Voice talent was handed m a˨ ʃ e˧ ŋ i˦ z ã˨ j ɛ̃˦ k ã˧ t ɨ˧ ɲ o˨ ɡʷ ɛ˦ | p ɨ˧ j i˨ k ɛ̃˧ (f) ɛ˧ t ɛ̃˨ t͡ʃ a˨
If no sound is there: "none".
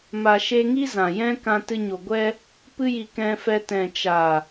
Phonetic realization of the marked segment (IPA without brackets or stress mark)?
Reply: f